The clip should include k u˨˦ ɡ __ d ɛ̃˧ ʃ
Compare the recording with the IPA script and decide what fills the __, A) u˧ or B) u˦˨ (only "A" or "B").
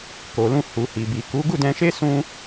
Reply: B